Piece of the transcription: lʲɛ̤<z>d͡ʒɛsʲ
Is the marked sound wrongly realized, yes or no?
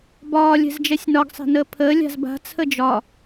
no